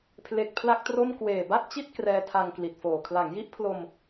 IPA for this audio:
pʰle˨˩k̚ pʰla˥˩k̚tro˥˩m kweː˨˩ba˥˩t̚t͡ɕi˥˩t̚ krɛː˦˥tʰa˧ŋkli˨˩t̚foː˨˩ kʰla˩˦ŋji˦˥ʔpʰlo˧m

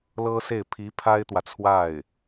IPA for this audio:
lɤ˥se˥˩ɪ̯ pʰi˧˥ pʰa˥ɪ̯t̪wä˨t͡sʰwa˥˩ɪ̯

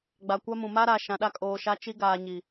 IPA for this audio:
ɡ͡ba˨kʷa˦mũ˨ ma˦ɾa˨ ʃã˨ɗa˦kʼoː˨ʃa˦ t͡ʃi˦ɡaː˨ ɲi˨

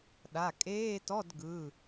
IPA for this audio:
ɗa˩˧˩kʼeː˧˥˧tɔ˧˥˧d ɡɯ˩˧˩

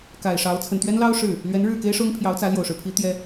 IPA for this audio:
ka˨˩ɪ̯ʂɑ˧˥ʊ̯ t͡sʰə˨˩nt̪ɥɛ˥nlɑ˥ʊ̯ ʂɻ̩˥˩ | lɥɛ˧˥nɻɻ̩˥˩ ke˥ɪ̯ʂʊ˥ŋpʰjɑ˧˥ʊ̯t͡sä˧˥ ljo˨˩ʊ̯ʂɻ̩˦pʰi˧˥ t̪jɛ˥

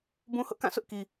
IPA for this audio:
bũ˦hʊ˦ʔ kã˦˨sʊ˦ʔ ki˦

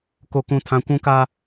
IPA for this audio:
ko˦kũ˦tʰã˦ kʷũ˦ka˦

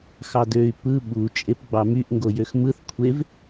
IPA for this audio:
xɑdøy̯ pɯ ɓu t͡ʃʼepɡ͡bɑmyʔ ŋɡojøxmɯθ kʷʰev

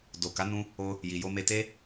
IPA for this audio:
do˨ka˨˦ nũ˦ | o˧ | ji˨jo˧me˧ te˧

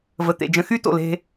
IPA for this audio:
və˨t̪ḛ˨d͡ʒə̃˧ xy˦ to̰˨le̤˧

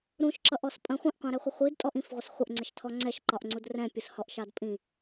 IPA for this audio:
ɾũʃǁʌʔɔs pʼə̃ χʷĩʔqʷɑ̃ɾɛχʷʌ χʷidtʼɔʔ ĩfʁʷɪs χʷəʔŋ͡ǀɪʃtʰɔ ŋ͡ǀɛʃǃɒʔŋ͡ǀud rɛ̃pʲʊshɔʔʃɑd pʼĩ

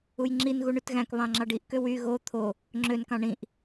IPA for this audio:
ujŋ͡ǁin ɣuɳytɣæ̃k βɑ̃ŋ͡ǁɑɖiʔ køwy ɣo t̪ʰo | ŋ͡ǁøn kɑ̃ɳĩʔ

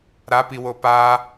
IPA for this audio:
ɾapiwo pa

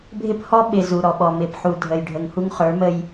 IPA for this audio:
bʱɪ˦phɔ˦ ɓɪ˨ zu˨ɾɔ˨ɓɔ˨mɪ˨˦p ħu˨dʱə˨jɖʱə˨ŋ hu˦ŋχə˞˨˦ mə˦j

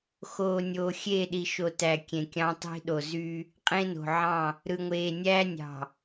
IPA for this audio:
xoː˨nʲoː˨ xʲeː˦˨ɗi˨ ʃo˨tæ˨ kʲẽ˨kʲɑ̃˦tˤi̤˦ ɗo˨zy˦ | qʼẽ˦no̤˨ʕɑ̃˦˨ | ɾɯ˨ŋʷeː˨nʲæː˦nʲɑ̤˨

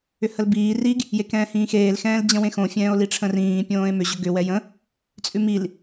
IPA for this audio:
ʏhəlbiː riɡ | jekɛ̃ːhĩːxeːl xɛ̃ːld͡ʑə̃wẽxõ fʲɛ̃ːo̯liʈ͡ʂʰə̃rĩː pʲõːe̯mʏ ʑʏɡʏ wɛjə̃ | t͡sʼʉmil

